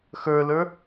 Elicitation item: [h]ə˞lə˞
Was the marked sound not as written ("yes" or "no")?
yes